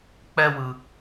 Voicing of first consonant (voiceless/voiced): voiceless